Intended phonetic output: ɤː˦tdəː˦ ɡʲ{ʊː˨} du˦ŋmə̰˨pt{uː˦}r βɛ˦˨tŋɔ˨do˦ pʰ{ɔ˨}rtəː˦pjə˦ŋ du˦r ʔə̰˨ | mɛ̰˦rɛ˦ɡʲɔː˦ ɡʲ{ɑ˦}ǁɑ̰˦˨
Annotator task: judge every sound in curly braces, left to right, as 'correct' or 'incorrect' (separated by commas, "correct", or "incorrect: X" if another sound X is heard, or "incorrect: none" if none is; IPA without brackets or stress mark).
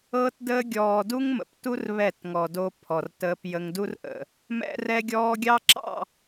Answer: incorrect: ɔː˨, incorrect: u˦, correct, correct